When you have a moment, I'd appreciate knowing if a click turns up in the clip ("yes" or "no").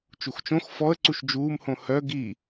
yes